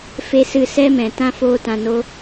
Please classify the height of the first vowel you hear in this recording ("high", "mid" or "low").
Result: mid